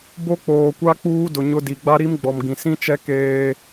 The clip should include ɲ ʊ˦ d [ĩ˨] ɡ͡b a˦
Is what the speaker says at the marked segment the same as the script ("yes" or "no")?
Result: no